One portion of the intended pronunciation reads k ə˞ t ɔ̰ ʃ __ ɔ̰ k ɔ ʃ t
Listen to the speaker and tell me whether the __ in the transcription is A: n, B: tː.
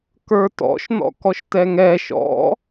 A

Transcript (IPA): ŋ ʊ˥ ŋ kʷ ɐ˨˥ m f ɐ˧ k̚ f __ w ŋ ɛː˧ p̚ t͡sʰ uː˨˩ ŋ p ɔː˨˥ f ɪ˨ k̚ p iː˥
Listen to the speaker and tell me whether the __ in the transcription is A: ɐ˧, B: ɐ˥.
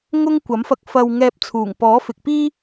A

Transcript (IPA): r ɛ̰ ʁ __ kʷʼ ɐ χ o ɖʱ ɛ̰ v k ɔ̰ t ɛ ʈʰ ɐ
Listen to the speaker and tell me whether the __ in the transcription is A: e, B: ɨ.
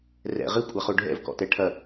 B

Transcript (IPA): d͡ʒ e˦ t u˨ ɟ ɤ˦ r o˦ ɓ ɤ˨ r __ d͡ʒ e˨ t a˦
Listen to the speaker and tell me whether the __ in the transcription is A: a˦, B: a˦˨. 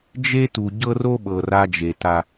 A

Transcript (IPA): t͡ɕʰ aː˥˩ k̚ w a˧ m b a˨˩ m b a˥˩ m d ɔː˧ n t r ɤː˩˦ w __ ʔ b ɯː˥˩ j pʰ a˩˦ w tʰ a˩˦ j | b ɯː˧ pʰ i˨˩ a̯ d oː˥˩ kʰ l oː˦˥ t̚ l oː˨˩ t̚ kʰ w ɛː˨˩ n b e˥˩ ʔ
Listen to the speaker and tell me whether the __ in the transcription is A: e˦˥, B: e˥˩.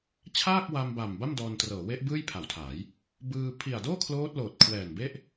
A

